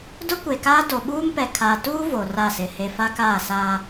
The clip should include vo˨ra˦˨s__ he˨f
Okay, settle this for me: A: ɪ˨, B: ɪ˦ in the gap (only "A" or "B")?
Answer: A